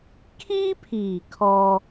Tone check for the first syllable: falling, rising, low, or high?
high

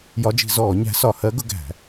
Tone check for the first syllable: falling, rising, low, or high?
rising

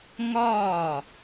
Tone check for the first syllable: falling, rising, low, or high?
falling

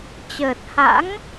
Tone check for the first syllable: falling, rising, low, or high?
low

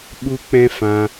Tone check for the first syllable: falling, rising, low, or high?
high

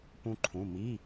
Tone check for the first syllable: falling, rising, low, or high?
high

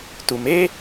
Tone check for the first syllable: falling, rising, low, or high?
low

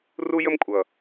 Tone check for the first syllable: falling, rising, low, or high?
high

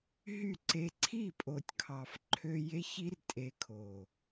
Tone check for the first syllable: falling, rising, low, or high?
falling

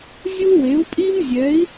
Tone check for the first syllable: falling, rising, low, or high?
high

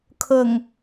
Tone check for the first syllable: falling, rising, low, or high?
low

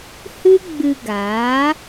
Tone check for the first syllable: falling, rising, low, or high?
high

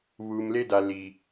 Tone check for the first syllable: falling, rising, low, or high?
low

